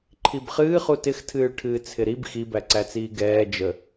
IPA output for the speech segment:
ǃʰibχɨːχu tɪxtʰɨːɭʈʰɨː t͡sʰɪɾib xibæǀæt͡siː ɡɛː d͡ʒə

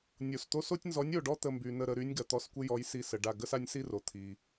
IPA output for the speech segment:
nʲo˩st̪o˦s o˦tʲnzɔ˨˥nʲo˧˩ɖɔ˦ t̪ə˧˩mby˩nə˧˩ ɾə˧˩ɾy˨˥nʲ ɡɐ˩t̪ɔ˧˩skʷɪ˦jɔ˨˥j si˧˩sə˩ɖa˧˩ ɡə˦sa˦nʲsi˦ro˩ t̪ʰi˩

